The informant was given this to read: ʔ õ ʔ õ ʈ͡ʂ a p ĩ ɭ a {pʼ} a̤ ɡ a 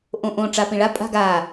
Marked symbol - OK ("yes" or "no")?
yes